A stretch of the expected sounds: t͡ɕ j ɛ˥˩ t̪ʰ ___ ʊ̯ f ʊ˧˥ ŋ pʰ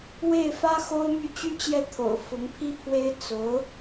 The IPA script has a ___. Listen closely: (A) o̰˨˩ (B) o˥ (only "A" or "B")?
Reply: A